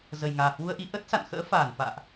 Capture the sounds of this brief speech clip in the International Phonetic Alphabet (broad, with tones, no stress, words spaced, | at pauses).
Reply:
zə˨˩jŋaː˨˩hwu˧ə̯ʔi˨˦ ʔə˦˥t̚ sa̰˧˨nxə̰ː˧˥faː˧˩nfa̰ː˧˨ʔ